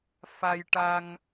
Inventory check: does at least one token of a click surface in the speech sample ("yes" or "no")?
no